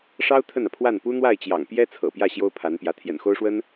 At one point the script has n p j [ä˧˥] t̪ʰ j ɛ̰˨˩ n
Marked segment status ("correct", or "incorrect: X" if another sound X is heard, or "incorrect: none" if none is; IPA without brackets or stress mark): correct